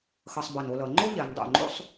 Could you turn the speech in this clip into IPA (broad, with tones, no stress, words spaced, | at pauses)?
xʌ˧sˤbʌ˧˩no˧lʌ˩˧ ŋ͡ǃo˥ʎɛ˩˧ndˤo̰˧˩ ŋ͡ǃo̰˥sˤ